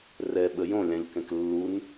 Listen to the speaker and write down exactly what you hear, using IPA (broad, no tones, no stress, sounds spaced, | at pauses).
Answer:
r ɛ ɓ ə j õ lʲ ã ʎ k ɛ̃ k lː u n